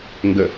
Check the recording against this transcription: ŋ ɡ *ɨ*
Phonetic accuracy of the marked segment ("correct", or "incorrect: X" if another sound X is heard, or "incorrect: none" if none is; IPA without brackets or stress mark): incorrect: ə